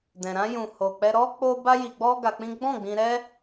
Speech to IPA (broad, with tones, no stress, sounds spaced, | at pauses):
d ɛ̃˨ ɾ ã˧ j ũ˨ h o˨ k͡p ɛ˧ ɾ ɔ˦ k͡p o˦ b a˦ j i˧ ɡ͡b ɔ˦ ɡ a˧ k͡p ĩ˦ ɡ͡b ɔ̃˦˨ ɡ͡b ĩ˧ ɾ ɛ˦